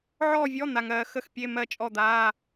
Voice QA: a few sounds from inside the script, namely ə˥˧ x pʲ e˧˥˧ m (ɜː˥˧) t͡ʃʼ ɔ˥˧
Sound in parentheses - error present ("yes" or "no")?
yes